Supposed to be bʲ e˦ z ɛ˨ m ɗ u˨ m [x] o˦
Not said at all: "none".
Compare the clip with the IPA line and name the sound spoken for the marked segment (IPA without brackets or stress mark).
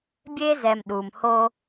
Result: h